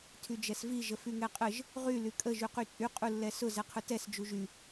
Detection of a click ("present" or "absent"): absent